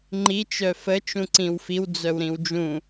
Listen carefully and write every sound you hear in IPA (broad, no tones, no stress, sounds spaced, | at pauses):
ŋ͡ǃ i t͡ʃ œ f ə t͡ʃ ũ ǀ ĩ w f i w d͡z œ w ɾ ĩ w d͡ʒ ũ